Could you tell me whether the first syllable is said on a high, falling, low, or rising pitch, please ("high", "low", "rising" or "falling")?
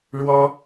high